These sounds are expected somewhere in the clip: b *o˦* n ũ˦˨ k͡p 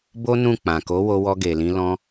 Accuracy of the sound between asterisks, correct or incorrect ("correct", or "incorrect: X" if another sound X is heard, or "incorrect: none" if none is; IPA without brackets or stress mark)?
correct